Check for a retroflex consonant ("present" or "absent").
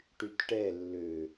present